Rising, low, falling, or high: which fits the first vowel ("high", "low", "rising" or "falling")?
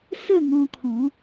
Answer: falling